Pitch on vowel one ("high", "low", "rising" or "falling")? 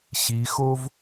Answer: rising